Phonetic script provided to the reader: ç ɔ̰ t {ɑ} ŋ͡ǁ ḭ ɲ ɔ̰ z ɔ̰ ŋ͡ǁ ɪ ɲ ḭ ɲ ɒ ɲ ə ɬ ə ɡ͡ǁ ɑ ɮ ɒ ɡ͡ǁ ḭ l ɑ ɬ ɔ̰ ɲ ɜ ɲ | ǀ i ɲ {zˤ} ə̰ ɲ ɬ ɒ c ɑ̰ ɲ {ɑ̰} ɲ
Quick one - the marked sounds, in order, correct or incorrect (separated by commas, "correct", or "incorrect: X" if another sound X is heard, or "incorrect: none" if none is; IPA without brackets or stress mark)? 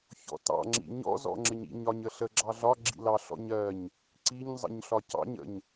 incorrect: ɑ̰, correct, incorrect: ə̰